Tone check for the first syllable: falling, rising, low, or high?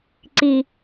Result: low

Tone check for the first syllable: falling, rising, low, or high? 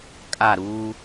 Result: falling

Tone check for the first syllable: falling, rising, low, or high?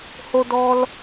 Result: high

